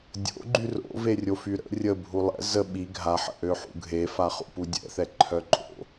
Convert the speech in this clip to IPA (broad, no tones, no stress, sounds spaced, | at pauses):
dʲ o̰ ɡ͡ǃ y r o̰ v e rʲ o f y ɾ ə̰ rʲ ə bʱ u lˠ ɛ̰ z ə ɓ i ɡʱ a ħ ə̰ ʔ ø ħ ṵ ɡʱ e f a χ ṵ p u dʲ ɛ̰ θ ɛ ǃʰ œ ǃʼ o̰